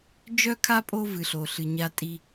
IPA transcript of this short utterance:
d͡ʒ œ˥ kʰ a˥ pʼ o˦ v ɨ˩ ɬ o˩ ɬ ɨ˩ ɲ a˨ tʼ i˨

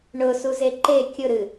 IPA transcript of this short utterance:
ɳ ʊ s u z e ǃ e kʲ ʊ ɾ ɨ

